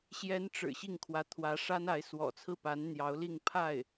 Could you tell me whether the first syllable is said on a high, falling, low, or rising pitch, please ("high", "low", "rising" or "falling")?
rising